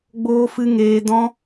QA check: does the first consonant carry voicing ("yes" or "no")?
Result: yes